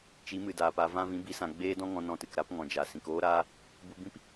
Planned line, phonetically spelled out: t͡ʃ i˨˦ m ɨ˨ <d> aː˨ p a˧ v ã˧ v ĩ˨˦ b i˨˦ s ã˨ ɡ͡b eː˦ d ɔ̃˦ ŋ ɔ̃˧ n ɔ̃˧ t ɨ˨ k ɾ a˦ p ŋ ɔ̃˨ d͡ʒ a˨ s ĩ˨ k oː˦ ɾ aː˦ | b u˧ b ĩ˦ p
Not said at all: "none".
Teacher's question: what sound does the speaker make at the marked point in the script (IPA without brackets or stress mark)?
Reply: d